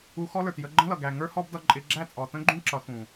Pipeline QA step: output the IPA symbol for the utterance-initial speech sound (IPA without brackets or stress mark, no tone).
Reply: u